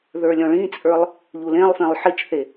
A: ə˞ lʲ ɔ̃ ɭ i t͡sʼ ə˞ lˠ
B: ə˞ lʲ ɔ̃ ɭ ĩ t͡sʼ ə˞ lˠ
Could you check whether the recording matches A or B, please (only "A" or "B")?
B